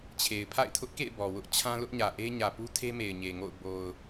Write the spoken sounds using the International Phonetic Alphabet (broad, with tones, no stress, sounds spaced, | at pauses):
t͡ɕʰ e˨ ɪ̯ pʰ a̰˦˨ ɪ̯ tʰ ʊ˦ ʔ k ḛ˦˨ ɪ̯ b ɔ˨ w ʊ˦ ʔ t͡ɕʰ ã˦ l ʊ˦ ʔ ɲ ä˨ ʔ e˦ ɲ ä˨ p u˦ tʰ e˦ m e˨ ɪ̯ ɲ e˨ ŋ o̰˦˨ ʊ̯ b o˨ ʊ̯